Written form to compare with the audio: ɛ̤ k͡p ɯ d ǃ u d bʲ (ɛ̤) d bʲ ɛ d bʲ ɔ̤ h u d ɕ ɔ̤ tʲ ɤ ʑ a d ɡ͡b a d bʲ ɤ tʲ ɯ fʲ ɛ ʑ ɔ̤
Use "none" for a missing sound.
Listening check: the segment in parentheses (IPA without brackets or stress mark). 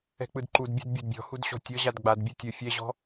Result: ɛ̤